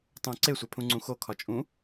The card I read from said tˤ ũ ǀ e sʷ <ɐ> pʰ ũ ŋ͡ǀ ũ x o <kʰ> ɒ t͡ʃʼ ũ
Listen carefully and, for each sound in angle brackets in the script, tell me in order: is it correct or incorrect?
incorrect: æ, correct

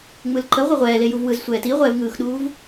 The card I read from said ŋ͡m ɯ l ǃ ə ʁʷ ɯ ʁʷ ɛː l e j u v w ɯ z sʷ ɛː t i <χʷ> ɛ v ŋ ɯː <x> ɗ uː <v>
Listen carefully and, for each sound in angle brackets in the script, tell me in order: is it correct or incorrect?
incorrect: ʁʷ, correct, correct

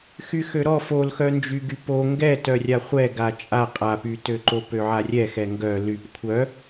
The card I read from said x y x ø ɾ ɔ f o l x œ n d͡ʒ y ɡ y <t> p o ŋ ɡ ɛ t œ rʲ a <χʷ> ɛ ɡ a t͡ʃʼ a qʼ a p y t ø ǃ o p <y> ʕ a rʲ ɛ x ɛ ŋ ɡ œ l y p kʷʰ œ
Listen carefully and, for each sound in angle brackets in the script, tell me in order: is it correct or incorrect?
incorrect: none, correct, incorrect: ø

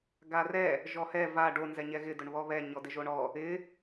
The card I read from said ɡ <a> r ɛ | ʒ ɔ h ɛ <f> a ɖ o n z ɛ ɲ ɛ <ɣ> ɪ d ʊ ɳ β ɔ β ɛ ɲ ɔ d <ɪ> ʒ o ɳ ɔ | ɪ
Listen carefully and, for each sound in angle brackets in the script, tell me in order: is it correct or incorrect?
correct, incorrect: v, correct, correct

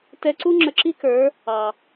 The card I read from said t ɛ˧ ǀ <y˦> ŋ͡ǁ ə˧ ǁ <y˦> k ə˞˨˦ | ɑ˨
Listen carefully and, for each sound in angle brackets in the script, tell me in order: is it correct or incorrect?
incorrect: u˦, incorrect: i˦

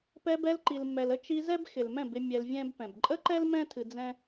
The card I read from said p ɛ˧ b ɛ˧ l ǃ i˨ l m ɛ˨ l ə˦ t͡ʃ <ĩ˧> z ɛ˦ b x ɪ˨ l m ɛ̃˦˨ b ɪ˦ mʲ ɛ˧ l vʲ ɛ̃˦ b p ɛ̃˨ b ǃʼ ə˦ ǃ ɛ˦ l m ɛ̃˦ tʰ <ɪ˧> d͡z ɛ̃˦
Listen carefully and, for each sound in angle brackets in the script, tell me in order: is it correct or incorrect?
incorrect: i˧, incorrect: ɨ˧

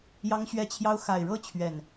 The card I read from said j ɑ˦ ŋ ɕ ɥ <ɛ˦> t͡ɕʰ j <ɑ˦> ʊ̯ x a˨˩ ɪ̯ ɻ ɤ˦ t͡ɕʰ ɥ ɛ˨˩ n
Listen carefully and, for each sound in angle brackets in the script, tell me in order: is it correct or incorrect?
correct, correct

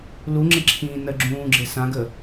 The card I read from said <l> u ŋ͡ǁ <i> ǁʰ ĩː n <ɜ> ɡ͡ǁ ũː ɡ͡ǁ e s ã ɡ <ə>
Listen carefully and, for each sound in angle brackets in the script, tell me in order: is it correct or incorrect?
correct, incorrect: e, correct, correct

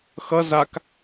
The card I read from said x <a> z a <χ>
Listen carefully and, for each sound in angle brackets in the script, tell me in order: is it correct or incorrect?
incorrect: ʌ, incorrect: k

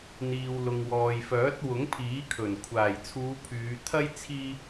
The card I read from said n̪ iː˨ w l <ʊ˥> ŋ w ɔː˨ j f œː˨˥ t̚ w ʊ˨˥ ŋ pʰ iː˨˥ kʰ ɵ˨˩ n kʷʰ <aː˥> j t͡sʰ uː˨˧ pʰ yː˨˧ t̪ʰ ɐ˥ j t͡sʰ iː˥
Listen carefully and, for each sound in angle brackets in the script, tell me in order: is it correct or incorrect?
incorrect: ʊ˨, incorrect: aː˨˩

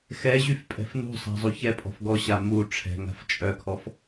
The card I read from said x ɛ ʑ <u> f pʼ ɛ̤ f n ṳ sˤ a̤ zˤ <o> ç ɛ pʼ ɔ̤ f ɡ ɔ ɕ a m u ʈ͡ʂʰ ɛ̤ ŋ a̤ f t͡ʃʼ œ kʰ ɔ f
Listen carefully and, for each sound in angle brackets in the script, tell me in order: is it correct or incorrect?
incorrect: y, incorrect: u

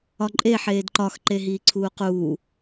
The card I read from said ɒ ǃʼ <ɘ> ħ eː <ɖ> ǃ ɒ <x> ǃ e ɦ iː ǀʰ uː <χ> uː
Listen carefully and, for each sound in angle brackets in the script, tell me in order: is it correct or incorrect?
incorrect: e, incorrect: d, correct, incorrect: q

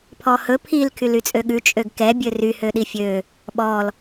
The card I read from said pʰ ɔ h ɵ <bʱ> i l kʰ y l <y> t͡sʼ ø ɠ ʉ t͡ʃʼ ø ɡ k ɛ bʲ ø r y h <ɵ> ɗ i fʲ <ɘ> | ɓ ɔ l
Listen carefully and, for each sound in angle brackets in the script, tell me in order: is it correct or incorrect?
incorrect: pʰ, correct, incorrect: ø, incorrect: ø

